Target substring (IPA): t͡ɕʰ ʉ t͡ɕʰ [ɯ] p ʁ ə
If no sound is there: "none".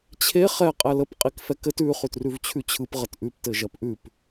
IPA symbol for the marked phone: ɯ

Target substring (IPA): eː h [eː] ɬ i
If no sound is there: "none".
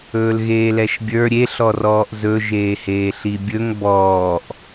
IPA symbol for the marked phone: eː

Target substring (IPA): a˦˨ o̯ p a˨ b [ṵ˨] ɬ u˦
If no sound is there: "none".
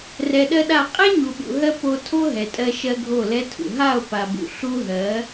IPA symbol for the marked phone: ṵ˨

